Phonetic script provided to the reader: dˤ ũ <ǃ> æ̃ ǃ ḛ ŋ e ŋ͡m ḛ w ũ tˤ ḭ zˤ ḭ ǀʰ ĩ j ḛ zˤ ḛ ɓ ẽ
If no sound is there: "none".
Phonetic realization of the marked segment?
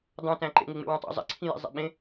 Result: t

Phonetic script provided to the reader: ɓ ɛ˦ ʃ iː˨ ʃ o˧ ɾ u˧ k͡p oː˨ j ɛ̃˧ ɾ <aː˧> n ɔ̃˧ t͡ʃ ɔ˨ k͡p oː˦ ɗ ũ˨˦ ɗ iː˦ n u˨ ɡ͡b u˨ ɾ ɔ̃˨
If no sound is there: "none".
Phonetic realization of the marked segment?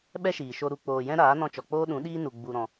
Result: aː˨˦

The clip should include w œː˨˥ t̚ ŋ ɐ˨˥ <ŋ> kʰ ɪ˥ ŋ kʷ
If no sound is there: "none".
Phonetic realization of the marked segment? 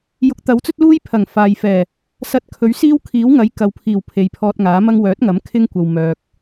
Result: m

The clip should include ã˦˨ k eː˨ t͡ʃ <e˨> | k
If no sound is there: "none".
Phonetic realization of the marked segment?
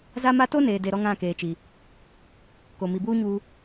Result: i˨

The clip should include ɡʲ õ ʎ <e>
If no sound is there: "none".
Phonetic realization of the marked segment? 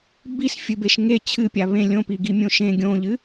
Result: ɨ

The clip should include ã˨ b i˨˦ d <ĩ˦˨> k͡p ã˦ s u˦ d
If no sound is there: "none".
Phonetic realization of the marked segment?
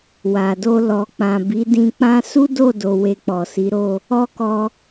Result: ĩ˧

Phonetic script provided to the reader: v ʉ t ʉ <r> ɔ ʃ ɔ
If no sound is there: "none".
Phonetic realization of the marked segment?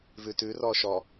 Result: r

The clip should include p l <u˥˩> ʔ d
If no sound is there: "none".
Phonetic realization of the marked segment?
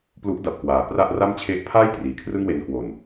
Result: u˦˥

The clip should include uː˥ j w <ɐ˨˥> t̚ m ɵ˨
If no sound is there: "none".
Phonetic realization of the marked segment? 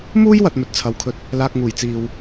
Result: ɐ˨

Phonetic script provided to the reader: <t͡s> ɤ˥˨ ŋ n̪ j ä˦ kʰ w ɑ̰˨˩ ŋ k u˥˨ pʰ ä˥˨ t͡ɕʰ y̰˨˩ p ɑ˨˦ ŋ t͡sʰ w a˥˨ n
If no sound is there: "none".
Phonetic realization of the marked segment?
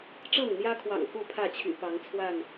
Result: ʈ͡ʂ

